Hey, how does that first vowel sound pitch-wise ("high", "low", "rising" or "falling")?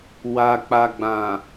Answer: low